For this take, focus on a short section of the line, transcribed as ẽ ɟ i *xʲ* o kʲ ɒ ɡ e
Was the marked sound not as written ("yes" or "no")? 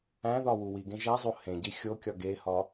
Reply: no